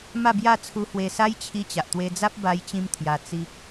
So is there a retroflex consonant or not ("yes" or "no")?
no